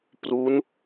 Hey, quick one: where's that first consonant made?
lips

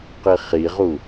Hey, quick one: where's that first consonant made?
uvula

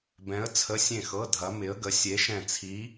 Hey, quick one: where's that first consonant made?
lips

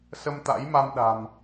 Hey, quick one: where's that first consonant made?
tongue tip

